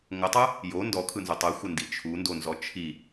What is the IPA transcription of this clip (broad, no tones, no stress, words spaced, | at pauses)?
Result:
ŋʷətˤɯ | jo ndɔkʰɯnzotˤ ɯxʷəndi t͡ʃʰundonzɔ t͡ʃʰi